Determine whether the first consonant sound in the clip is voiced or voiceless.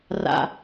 voiced